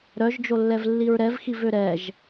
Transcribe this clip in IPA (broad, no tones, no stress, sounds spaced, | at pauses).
ɾ œ ʒ d͡ʒ o lː ɛ v lː i ɹ ɾ ɛ v x i v ø ɾ ɛ ʒ